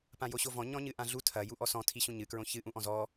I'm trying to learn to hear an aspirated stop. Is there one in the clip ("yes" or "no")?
yes